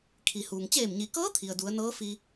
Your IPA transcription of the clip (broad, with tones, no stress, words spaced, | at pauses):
kʰi˩huː˩ŋ t͡ɕeː˧˩mɲi˩kɤː˧˥ t̪ʰi˩ə̯du˩˧ə̯nɤː˧˥ fi˧